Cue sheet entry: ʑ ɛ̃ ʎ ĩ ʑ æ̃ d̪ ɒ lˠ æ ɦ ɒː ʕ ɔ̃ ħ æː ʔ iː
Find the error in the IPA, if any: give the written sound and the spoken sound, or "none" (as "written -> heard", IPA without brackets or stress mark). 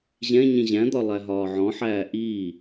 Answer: ʎ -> ɲ